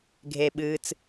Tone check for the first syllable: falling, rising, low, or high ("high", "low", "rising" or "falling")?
low